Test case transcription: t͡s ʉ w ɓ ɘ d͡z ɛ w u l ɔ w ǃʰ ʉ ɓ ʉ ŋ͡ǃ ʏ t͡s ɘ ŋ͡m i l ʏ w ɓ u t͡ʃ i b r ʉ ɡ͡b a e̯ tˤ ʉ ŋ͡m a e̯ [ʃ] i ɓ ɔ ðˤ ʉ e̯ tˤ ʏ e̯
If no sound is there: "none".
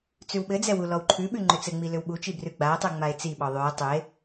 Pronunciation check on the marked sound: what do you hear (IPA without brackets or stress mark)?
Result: t͡s